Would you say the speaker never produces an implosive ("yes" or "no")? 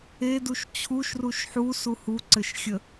yes